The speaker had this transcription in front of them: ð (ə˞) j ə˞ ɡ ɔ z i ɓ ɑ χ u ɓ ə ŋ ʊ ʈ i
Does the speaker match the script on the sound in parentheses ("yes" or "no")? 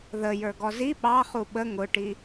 no